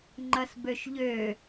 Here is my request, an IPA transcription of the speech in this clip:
ŋ͡ǃɐsbøʃʎø

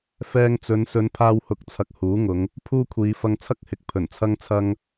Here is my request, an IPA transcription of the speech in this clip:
fɛː˧ŋt͡sɵ˨˧n sɵ˨˧npʰaː˧w hʊ˨˥k̚t͡sʰɐ˨k̚ huː˨˥ŋʊ˨˧ŋ | pʰuː˥kʷʰiː˨˧ fɐ˧ŋt͡sʰɐ˥k̚hɪ˨˥k̚ pʰɵ˨˩nt͡sʰɐ˥ŋt͡sʰɐ˥ŋ

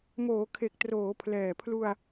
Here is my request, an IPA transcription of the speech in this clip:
moː˩˦kʰe˨˩k̚ troː˩˦pʰlɛː˨˩pʰlu˧a̯

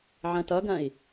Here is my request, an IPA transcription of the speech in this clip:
ʕɐ̃tʌɡɐ̃i̯

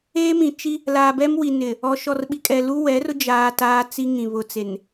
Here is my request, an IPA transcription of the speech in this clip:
eː˦mĩ˨ t͡ʃi˦ | laː˨bɛ˦mwi˨ nɪ˨ | ɔ˨ʃɔ˨rɓi˨kʼɛ˨ lu˦wɛ˨˦rʊ˦ d͡ʒaː˦taː˦ t͡si˦ŋĩ˨ βʊ˨t͡se˨n

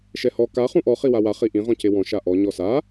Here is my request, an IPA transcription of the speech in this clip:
ʃɛhɔ ka χũʔɔ χiwawa χiʔĩ ʁɔ̃cewɔ̃ ʃaʔɔ ɲɔsa

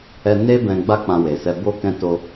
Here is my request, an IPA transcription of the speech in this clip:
ɛ˧ ne˦ bɛ̃˧ɡ͡ba˦ k͡pã˧we˨sɛ˧ bo˦ kɛ̃˧to˧

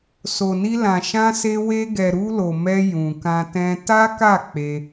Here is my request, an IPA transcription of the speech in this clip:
so˨ni˧lã˨ ʃã˧se˧ we˧ɡɛ˨ɾu˧lo˨ mɛ˧ jũ˨kã˧ tɛ̃˧ ta˦ka˦˨ k͡pe˧

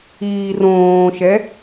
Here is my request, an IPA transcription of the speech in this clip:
iːrõːʃɛ

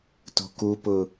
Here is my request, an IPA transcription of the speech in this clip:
to̤kupʊ

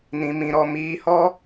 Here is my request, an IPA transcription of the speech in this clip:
nĩ˧mĩ˧ɾɔ˧ miː˧hɔ˦

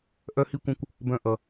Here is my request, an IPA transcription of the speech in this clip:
ʔœ˧hi˧ kʷə̃˧kʷ | bœ̃˧ ʔʌ˧

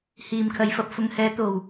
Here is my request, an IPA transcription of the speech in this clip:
hiː˨mkʰɐ˨˧jfɐ˨p̚fʊ˧ŋ hɛː˨˧t̪o˨w

